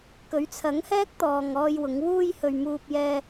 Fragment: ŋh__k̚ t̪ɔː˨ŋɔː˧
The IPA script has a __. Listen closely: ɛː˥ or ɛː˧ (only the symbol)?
ɛː˥